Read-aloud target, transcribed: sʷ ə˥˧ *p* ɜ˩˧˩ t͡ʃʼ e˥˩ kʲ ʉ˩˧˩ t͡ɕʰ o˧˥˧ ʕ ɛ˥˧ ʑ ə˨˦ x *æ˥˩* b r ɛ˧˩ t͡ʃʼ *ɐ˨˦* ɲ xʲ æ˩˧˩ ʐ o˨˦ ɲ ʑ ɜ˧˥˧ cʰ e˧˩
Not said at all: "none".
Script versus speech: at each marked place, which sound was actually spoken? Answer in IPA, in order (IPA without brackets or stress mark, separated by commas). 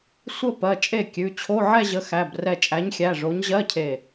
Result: p, æ˩˧˩, æ˨˦